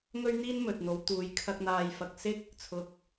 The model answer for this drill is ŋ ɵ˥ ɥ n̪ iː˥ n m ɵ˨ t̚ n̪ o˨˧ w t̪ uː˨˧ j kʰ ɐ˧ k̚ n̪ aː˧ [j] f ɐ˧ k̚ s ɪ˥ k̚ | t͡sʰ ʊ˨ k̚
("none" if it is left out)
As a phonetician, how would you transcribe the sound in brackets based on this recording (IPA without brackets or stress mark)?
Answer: j